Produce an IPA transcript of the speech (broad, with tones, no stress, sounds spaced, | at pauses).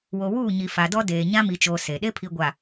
w o˨ w uː˦˨ ɲ i˨ f a˨ d ɔ˦ d eː˨ ɲ ã˦ m i˨ t͡ʃ oː˨ s e˨ ɗ e˦ pʰ i˨ ɡʷ a˨